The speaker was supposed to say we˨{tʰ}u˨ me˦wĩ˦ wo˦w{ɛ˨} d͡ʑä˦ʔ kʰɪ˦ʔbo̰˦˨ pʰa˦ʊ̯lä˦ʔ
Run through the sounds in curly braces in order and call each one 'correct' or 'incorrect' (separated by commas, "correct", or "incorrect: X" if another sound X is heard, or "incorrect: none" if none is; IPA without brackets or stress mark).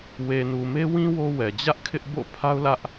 incorrect: n, correct